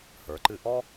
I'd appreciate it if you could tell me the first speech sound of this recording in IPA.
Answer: h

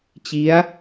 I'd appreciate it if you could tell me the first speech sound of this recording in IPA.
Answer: t͡ɕ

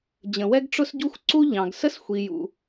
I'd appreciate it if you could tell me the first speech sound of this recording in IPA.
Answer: d͡ʑ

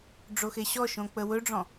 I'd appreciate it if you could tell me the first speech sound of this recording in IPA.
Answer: ɖ͡ʐ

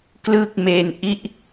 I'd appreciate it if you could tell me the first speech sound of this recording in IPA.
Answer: k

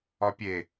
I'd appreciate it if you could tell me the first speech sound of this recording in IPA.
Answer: ɒ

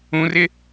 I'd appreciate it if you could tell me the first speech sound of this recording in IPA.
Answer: ũ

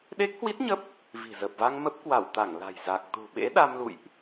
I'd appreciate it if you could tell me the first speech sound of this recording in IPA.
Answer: ɗ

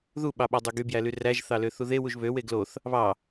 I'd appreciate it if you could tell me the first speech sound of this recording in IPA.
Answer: ð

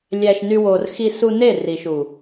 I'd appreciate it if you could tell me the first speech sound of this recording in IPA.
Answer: lʲ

